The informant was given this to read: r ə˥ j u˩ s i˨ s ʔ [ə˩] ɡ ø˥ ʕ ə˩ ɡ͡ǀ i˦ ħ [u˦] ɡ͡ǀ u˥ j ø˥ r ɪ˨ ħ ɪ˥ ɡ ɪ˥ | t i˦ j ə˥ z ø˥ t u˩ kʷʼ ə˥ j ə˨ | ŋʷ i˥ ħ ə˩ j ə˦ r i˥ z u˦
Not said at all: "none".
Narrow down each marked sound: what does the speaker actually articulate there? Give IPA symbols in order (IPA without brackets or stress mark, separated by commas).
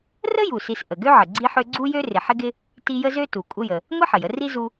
ə˩, ø˦